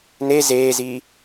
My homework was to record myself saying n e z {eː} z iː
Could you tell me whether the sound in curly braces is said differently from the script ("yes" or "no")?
no